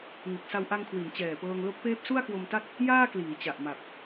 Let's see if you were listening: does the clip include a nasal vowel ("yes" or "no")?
no